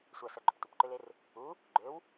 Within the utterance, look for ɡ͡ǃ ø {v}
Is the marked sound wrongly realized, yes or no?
yes